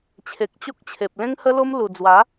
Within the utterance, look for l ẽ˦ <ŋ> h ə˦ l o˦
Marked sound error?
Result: no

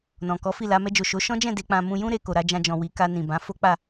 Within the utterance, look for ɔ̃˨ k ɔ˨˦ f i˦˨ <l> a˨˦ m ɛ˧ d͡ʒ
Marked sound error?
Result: no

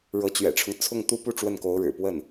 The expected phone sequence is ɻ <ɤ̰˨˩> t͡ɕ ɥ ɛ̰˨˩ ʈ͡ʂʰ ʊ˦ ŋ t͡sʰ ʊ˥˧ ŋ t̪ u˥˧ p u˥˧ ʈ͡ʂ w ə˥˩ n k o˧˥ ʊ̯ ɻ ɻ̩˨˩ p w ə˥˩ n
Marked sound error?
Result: yes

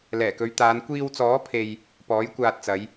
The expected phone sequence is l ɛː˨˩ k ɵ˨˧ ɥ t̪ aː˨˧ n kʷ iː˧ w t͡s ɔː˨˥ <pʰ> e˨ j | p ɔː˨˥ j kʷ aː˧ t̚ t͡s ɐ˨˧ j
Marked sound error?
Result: no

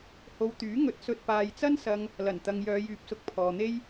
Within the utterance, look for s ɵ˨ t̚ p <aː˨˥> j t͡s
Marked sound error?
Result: yes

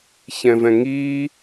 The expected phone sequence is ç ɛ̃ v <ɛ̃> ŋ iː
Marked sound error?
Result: no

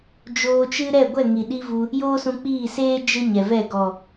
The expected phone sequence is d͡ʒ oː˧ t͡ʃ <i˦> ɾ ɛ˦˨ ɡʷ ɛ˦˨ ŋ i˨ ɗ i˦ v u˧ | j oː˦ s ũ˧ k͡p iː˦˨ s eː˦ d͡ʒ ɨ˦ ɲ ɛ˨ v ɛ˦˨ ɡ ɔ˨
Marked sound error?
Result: yes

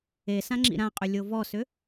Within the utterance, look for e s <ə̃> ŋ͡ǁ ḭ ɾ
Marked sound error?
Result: yes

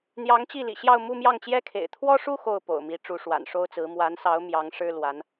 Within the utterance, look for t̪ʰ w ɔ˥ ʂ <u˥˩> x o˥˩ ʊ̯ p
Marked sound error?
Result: yes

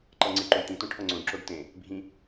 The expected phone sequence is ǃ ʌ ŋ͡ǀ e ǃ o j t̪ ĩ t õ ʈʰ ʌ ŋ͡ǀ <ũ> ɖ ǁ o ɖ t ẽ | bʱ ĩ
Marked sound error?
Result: yes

